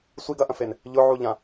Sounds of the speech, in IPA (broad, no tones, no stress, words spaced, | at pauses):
sʷiɡ ɐʔɐ̃fen | ʎʊʕuʎã